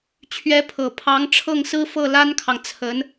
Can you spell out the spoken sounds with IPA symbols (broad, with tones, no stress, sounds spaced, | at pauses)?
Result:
t͡ɕʰ ɥ ɛ˧˥ pʰ ɤ˨˩ pʰ ɑ˧˥ ŋ ʈ͡ʂʰ ɤ˥˩ ŋ s ɹ̩˥ f ɤ˥˩ l a˥ n kʰ ɑ˨ ŋ t͡sʰ ə˧˥ n